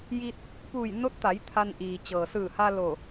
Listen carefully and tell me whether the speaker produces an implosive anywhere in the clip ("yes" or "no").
no